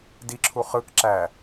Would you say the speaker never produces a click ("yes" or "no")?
no